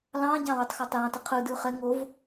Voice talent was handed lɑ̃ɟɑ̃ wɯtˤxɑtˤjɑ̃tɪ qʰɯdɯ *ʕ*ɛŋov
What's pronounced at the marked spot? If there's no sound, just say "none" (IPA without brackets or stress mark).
χ